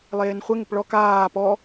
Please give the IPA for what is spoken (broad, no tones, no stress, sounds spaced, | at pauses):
lˠ eː n χʷ e ŋ ɪ p ɭ ɔ k aː p ɔ